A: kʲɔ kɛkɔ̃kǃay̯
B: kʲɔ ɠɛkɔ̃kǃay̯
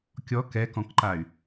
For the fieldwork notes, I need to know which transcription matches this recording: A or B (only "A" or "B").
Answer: A